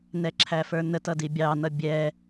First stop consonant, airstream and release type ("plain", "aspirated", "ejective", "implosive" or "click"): click